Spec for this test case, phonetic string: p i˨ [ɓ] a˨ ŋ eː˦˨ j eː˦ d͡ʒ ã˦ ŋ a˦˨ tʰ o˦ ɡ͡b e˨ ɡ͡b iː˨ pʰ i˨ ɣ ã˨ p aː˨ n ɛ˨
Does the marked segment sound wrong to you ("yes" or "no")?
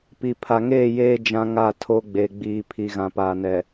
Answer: yes